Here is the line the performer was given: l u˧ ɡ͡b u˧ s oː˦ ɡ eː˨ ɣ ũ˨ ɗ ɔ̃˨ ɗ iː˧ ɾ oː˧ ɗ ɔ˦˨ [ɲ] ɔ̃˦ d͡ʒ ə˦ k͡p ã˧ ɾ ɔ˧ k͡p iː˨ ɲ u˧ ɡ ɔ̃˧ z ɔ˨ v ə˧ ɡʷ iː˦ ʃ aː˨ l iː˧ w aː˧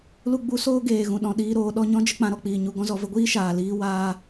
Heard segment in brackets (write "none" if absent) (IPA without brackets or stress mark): ɲ